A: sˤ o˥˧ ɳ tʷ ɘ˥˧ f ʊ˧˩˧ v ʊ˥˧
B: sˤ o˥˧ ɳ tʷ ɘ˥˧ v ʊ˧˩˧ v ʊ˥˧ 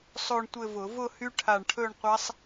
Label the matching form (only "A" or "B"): B